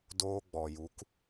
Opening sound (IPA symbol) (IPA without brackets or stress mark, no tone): d